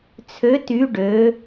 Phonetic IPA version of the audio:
t͡sʰø˧˥ty˧˥ ɖø˧˥

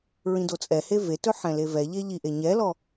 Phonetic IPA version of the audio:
ɹĩdot͡sʼɛhe vetɵ ħɛ̃levɛʎe ʎiʔe ɲɛlɔ

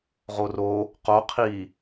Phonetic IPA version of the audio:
ʁoro | qo qʰi

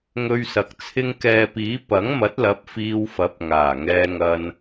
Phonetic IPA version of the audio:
ŋɵ˧ɥsɐ˨k̚ t͡sʰɪ˧ŋkɛː˨piː˨˥ pɐ˨˥ŋmɐ˨˥t̚lɐ˨˥p̚ fiː˧wfɐ˨˥p̚ ŋaː˨˩ŋɛː˧ŋɐ˧n

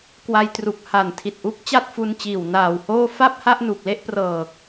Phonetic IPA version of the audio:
kwa˧jtru˨˩k̚ ha˨˩ntʰi˨˩t̚ʔu˦˥k̚ t͡ɕa˥˩t̚fu˧nt͡ɕiː˨˩w naː˨˩whoː˥˩ fa˥˩p̚ha˥˩ʔnu˨˩k̚ le˥˩ʔprɤː˨˩k̚

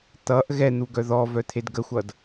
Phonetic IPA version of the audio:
t̪ʌʔ ɣɛn̪u ɡœðɔvœ t̪ʰedɡəxʷʌd

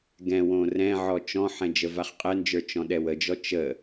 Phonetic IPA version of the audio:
ɡɛ̃wõ rɛ̃ʕɔ t͡ʃɔ̃ħɛ̃ d͡ʒəvaχqʼɛnd͡ʒə˞ t͡ʃɔ̃ɗɛwəd͡ʒɔ t͡ʃə

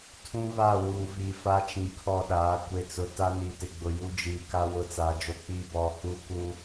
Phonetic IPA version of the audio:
tʰũ˦βa˦˨wuː˨vi˨ fa˦t͡ʃĩ˨kʰɔ˦˨ɗaː˨˦ kʷe˨t͡sʊ˨ ta˦niː˨tɪ˨ɡ͡bʊ˨ ju˦d͡ʒiː˨ka˦ wʊ˦t͡sa˨˦d͡ʒo˦ k͡pi˦˨bɔ˨ huː˦ku˦

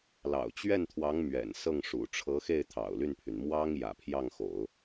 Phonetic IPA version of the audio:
lɑ̰˨˩ʊ̯t͡ɕɥɛ˥˩nt̪ʰwɑ˧˥ŋ mɥɛ̰˨˩nsɤ˥˩ŋʂṵ˨˩ ʈ͡ʂʰɤ˧˥xe˥˩ɪ̯ t̪ʰɑ̰˨˩ʊ̯ly˥˩npʰy˩n mwɑ˥ŋ jä̰˨˩pʰjɑ˥˩ŋxo̰˨˩˦ʊ̯

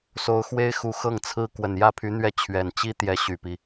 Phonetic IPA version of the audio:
so˧˥ʊ̯xwe˥ɪ̯xu˧˥ xɤ˥˩ŋt͡sʰɹ̩˥ kwə˨˩njä˥˩pʰy˧˥n̪ɥɛ˥˩ t͡ɕʰɥɛ˨˩nt͡ɕi˥t̪jɛ˧˥ ɕy˨˩pi˦

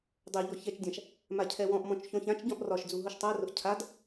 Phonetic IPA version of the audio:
dˤɜʎɔ çɛt͡ʃdʲãʃ | macʰɛwɔ̃ʔmɔ̃t͡ʃ çɔ̃çãt͡ʃɟɔ̃ʔ rɒʃ d͡zuɦʊʃtˤarʊʔ cʰad

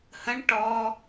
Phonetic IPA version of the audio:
hə̃ɳ ʈɔ

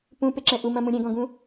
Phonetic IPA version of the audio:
pũpeǁɛ̃ ʔumɐ̃mũ ɾʲɛ̃ɡɔ̃ɡũ

